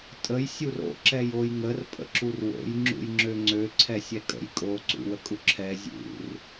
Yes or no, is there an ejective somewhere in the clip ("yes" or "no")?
yes